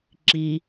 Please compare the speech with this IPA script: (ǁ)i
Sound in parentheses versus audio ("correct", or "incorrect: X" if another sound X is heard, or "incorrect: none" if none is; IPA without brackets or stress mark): correct